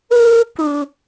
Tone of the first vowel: high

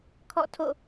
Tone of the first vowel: falling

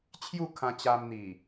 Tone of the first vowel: falling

